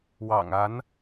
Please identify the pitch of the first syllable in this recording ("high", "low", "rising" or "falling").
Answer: low